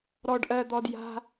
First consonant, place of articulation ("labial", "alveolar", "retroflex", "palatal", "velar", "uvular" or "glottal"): alveolar